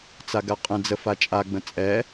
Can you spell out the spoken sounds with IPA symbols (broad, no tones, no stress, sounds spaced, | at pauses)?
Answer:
t͡s a ɡ a qʼ ə̃ d͡z ə f a t͡ʃʼ a ɡ͡b ə̃ t͡sʼ ɛ